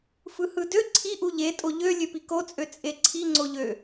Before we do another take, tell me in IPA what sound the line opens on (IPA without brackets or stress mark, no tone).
f